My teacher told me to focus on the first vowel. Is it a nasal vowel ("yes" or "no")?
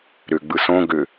no